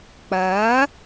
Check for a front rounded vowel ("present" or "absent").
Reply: absent